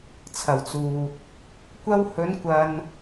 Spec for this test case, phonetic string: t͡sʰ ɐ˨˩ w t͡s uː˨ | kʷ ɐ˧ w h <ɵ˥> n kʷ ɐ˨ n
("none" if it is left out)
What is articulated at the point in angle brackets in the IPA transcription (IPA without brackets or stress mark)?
ɵ˨˧